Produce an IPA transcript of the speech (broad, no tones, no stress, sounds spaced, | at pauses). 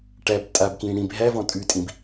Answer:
ʈ æ b tʼ a b k ĩː ɽ ĩ b ɦ æ v ɔ̃ tʼ ʉ tʼ ĩ b